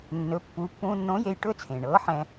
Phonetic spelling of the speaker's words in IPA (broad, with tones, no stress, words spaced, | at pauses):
nːɵ˩˧pːu˩˧ pːũː˧nːõ˧˥je˧j ʈɵ˥t͡sʰẽː˩ɳɤː˧˥ħɛ̃˧